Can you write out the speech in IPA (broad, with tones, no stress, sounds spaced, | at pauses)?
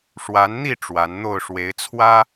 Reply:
ʂ w a˨˦ n n̪ i˥˨ ʈ͡ʂ w a˨˦ n n̪ o˥˨ ʊ̯ ʂ w e˨˦ ɪ̯ t͡sʰ w ä˦